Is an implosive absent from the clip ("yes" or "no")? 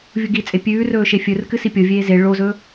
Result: yes